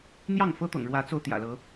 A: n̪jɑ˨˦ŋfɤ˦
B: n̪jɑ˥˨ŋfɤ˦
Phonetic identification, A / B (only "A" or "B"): B